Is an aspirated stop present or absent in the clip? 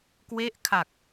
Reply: present